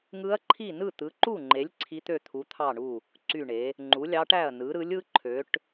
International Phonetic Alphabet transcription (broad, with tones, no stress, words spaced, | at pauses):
ŋɯ˧˥ɐ̯ǃʰi˥˩ nɯ˥˩t̪ɯ˩˥ǃu˥˩ŋ͡ǃe˩˥lʲ ǀʰi˧˥t̪ø˥˩t̪ʰu˩˥ t̪ʰɑ˥˩ɳu˥˩ | ǀy˥˩ɳe˩˥ | ŋ͡ǃu˩˥lʲɑ˧˥ʈæ˥˩ɐ̯nɯ˩˥ ɾɯ˩˥lʲɯ˧˥ ǃʰø˩˥ʈ